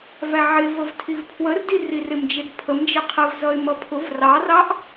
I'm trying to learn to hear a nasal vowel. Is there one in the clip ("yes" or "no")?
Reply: no